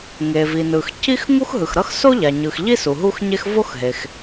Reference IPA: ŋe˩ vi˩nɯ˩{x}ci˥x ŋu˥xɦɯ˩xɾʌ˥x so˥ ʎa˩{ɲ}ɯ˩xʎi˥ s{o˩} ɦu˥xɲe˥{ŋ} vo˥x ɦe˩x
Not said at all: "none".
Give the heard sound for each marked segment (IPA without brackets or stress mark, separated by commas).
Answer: x, ɲ, u˩, x